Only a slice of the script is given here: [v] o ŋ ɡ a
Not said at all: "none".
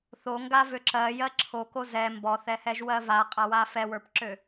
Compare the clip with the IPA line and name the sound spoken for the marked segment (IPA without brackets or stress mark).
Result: θ